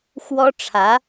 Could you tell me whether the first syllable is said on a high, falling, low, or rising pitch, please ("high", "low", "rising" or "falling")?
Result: high